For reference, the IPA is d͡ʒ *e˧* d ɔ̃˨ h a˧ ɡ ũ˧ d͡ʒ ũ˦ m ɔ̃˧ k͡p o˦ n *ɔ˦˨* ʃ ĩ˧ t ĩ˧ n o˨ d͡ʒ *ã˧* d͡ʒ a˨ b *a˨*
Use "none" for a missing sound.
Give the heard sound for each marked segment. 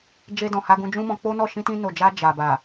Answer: e˧, ɔ˦˨, a˧, a˨

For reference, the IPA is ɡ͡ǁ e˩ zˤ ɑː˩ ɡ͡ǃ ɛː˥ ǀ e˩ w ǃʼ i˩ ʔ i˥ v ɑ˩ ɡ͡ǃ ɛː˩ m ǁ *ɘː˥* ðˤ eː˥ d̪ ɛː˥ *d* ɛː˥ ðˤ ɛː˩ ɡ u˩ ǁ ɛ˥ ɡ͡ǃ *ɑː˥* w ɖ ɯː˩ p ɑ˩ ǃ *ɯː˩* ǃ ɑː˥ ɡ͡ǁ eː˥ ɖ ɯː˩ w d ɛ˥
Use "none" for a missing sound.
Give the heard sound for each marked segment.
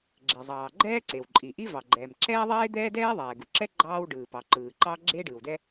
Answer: ɛː˥, d, ɑː˥, ɯː˩

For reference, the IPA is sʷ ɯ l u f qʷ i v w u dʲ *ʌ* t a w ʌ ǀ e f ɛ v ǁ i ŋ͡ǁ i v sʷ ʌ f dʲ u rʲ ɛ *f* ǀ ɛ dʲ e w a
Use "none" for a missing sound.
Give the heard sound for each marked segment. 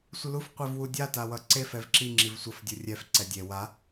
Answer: a, f

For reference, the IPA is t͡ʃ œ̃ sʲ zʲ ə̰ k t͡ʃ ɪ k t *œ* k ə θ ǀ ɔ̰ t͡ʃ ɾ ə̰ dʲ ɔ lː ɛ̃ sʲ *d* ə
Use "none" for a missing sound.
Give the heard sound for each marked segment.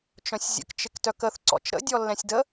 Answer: œ, d

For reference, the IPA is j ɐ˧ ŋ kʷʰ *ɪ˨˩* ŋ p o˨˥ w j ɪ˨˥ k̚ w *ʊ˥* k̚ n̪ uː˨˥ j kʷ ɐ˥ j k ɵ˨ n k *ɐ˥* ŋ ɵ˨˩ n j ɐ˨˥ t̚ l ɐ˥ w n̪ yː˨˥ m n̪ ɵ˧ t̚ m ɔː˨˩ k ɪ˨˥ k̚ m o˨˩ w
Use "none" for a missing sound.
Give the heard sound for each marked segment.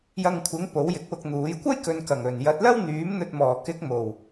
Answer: ɪ˨˥, ʊ˧, ɐ˨˩

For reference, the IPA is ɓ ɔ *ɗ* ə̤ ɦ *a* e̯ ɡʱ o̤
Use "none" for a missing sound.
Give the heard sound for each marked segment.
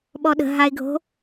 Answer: ɗ, a

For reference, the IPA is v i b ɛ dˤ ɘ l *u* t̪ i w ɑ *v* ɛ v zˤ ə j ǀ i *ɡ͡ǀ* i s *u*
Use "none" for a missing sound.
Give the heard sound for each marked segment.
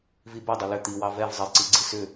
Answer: ʏ, v, ɡ͡ǀ, ʏ

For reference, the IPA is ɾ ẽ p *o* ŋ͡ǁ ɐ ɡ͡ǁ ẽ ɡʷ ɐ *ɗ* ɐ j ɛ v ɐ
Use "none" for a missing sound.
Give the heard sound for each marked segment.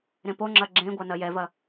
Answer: o, n

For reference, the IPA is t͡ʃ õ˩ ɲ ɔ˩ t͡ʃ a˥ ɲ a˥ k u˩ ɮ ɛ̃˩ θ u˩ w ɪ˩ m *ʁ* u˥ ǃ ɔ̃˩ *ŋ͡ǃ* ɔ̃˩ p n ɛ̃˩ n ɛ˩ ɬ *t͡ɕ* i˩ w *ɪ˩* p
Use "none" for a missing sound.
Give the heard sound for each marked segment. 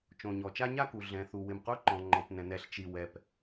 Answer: q, ŋ͡ǃ, t͡ʃ, ɛ˩

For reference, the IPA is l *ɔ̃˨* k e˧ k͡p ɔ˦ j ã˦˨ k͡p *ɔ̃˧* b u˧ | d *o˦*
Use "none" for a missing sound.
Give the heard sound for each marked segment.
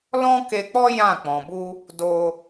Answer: ɔ̃˦, ɔ̃˨, o˧

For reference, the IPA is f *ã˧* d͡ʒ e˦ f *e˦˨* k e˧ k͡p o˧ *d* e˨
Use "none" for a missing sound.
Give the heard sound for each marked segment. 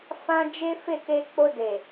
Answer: ã˧, e˦˨, d

